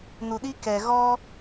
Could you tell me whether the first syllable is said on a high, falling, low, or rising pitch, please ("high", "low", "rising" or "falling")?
low